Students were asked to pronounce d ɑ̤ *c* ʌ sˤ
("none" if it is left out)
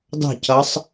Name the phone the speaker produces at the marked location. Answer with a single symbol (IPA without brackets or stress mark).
c